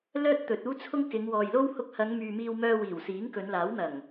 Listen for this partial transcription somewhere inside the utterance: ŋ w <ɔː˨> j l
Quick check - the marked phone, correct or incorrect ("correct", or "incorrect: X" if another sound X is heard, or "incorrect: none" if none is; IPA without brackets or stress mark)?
correct